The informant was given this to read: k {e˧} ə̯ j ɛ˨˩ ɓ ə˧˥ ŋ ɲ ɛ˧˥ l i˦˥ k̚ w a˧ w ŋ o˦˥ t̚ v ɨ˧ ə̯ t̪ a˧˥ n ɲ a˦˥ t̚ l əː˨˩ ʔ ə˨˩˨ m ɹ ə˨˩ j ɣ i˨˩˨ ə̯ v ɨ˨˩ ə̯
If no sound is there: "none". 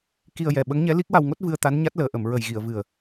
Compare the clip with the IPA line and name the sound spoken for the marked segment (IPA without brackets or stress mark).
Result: i˧